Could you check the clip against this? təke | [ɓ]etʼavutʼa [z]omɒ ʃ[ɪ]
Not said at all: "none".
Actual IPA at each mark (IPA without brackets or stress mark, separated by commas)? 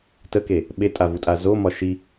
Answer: ɓ, z, i